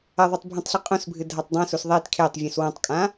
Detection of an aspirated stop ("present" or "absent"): present